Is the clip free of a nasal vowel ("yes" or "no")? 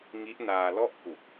yes